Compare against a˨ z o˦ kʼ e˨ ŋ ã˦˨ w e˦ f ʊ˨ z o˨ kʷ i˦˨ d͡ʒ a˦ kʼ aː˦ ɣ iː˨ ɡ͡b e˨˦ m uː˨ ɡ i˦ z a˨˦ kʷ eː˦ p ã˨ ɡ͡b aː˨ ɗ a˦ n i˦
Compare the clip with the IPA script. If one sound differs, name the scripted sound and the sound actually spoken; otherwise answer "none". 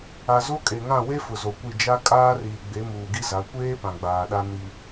ɣ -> r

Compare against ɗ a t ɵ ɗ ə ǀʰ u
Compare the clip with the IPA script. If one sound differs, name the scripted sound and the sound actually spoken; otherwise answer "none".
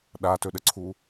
none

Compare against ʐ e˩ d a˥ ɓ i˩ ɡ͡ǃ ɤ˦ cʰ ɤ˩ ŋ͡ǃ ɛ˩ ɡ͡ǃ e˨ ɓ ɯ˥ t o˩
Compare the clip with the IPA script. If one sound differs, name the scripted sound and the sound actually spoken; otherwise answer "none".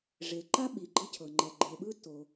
d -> ǃ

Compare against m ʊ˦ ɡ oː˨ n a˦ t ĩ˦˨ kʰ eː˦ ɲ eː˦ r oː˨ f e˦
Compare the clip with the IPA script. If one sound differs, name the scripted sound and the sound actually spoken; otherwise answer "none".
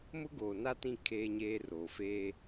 e˦ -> eː˦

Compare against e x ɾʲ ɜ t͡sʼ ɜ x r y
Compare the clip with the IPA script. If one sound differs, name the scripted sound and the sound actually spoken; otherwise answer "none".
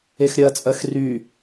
none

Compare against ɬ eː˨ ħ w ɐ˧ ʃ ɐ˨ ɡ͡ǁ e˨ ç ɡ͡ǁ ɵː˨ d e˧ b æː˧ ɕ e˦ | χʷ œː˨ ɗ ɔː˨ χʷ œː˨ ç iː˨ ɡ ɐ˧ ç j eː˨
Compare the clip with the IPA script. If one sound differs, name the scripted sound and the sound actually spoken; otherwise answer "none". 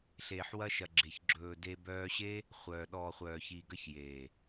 æː˧ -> œː˧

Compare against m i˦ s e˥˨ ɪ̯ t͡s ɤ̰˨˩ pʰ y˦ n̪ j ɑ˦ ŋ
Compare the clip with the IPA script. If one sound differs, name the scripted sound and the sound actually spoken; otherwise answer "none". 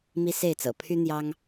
none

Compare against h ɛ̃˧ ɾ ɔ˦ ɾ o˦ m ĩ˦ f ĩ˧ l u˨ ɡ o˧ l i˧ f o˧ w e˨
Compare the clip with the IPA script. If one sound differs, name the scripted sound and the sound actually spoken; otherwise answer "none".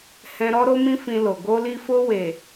u˨ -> o˨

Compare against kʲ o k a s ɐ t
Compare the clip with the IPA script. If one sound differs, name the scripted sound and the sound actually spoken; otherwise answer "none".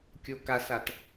ɐ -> a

